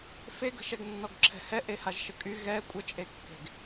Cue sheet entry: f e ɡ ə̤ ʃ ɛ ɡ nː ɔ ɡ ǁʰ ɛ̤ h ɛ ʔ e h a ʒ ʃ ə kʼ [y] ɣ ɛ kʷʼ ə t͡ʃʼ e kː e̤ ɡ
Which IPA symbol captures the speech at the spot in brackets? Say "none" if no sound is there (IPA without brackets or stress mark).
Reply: y